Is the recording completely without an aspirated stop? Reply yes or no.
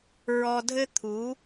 no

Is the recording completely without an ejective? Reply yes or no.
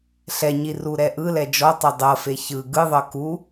yes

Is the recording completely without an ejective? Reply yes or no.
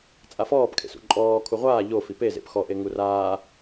no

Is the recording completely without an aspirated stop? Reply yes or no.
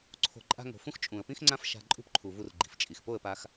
no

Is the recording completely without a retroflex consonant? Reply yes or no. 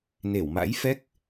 yes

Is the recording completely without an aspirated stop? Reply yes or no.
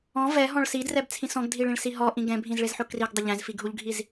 no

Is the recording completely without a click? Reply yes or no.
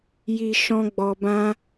yes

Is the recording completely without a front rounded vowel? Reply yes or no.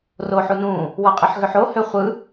no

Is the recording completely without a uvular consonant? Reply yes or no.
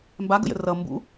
yes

